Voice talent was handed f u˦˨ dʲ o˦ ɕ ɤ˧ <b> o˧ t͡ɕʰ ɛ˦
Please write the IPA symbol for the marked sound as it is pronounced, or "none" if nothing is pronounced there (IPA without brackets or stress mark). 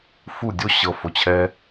f